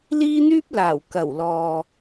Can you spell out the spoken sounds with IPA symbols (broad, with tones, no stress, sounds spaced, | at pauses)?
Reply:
l iː˥ n̪ yː˥ p̚ l aː˨˩ w k ɐ˨˩ w l ɔː˨